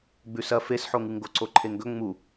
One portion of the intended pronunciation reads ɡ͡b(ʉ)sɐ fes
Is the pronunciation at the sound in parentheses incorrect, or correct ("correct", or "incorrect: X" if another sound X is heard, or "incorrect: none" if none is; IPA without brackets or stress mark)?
correct